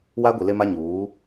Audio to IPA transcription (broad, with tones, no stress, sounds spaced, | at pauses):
w a˦ ɡʷ i˨ l e˦ m a˦ ɲ uː˨˦